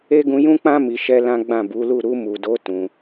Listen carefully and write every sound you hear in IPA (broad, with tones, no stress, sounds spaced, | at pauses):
e˦ ɡ ũ˧ j ũ˦ k͡p ã˦ m i˧ ʃ ɛ˦ l ã˦ ɡ͡b ã˦˨ b u˨˦ l u˦˨ ɾ u˧ m u˨ d o˨˦ t ũ˧